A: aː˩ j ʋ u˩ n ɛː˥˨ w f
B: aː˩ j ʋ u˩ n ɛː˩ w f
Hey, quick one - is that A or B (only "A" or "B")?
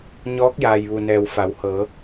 B